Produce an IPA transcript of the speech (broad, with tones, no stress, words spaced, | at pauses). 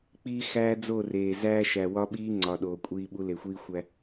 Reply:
k͡piː˦ xæː˦d͡zo˦˨reː˨ zæː˦ʃæ˨ wɒ˦ɓiː˦ ŋ͡ǀɒ˨ ɗoː˨kʷʼiː˦ɓu˦ le˨xʷiː˦xʷæ˦